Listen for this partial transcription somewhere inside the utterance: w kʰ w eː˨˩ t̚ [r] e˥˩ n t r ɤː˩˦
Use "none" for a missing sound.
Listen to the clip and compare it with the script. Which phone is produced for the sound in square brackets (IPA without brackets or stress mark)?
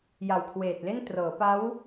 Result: l